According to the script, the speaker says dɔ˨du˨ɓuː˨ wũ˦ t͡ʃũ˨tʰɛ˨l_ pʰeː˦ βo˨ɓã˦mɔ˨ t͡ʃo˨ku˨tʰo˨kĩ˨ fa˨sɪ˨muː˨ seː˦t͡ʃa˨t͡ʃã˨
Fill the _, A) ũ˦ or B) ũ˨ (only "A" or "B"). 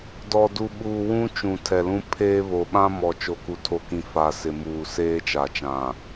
A